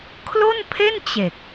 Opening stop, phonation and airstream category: aspirated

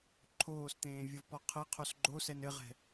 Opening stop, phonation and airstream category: click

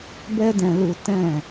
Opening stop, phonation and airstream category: plain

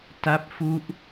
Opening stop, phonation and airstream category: plain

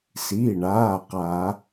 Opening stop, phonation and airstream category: plain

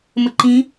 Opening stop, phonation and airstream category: click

